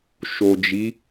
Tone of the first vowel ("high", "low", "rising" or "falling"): low